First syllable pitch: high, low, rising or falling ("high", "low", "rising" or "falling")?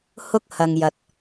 high